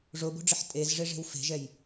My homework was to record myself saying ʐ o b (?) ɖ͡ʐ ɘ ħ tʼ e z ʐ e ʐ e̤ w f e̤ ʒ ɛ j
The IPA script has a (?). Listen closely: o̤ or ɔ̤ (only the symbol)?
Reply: o̤